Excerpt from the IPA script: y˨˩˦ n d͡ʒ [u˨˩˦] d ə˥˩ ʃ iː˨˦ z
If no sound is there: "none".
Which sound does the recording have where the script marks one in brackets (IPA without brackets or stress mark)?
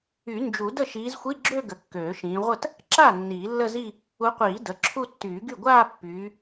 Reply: u˨˩˦